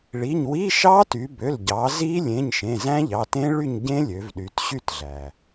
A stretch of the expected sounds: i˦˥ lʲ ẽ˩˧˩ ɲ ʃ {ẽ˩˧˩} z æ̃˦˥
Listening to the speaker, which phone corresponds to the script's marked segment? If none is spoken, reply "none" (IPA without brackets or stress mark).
ẽ˩˧˩